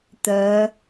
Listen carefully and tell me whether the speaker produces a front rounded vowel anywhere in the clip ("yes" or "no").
yes